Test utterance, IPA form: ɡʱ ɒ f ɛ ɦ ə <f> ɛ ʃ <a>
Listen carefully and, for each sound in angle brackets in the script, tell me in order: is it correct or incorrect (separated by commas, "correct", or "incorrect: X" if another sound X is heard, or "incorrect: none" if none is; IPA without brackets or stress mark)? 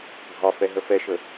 correct, incorrect: ə